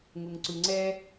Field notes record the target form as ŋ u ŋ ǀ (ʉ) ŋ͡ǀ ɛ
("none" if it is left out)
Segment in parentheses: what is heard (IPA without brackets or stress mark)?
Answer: ʉ